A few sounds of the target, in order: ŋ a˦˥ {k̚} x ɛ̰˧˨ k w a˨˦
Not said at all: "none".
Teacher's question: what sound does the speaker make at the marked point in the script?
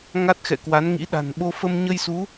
t̚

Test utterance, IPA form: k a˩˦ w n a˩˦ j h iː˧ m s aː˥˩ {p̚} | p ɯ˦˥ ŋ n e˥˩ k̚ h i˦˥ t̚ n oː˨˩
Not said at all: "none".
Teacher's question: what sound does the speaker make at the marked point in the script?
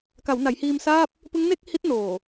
p̚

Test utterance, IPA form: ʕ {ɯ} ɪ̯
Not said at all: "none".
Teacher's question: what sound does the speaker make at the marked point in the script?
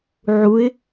u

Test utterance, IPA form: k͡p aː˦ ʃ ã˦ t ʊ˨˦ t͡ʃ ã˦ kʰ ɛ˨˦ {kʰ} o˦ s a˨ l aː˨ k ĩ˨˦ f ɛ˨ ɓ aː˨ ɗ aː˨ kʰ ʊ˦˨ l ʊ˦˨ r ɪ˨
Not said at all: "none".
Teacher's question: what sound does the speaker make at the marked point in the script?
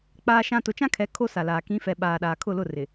kʰ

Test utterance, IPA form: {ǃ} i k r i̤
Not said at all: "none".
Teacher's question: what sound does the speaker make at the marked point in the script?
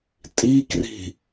tʼ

